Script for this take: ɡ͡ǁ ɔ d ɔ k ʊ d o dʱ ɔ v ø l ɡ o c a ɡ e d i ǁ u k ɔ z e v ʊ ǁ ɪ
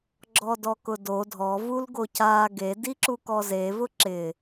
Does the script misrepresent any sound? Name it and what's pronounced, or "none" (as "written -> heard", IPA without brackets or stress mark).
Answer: ø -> u